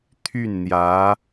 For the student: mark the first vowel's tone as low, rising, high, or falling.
falling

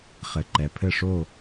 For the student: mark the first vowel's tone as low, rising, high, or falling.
low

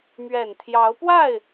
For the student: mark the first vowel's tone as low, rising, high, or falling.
low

